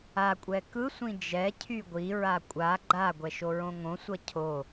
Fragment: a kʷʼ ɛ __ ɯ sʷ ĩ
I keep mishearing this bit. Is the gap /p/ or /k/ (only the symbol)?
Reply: k